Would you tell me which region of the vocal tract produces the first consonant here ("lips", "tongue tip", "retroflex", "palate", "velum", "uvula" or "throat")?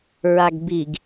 tongue tip